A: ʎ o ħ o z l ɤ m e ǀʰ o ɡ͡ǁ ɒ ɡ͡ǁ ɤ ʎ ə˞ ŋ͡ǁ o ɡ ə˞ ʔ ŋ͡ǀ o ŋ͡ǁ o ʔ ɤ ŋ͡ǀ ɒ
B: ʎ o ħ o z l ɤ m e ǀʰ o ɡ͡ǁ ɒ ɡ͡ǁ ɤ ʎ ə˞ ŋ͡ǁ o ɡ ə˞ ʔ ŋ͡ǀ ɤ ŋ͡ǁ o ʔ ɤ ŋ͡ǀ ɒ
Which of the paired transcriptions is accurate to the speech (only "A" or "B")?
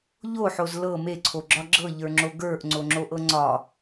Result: A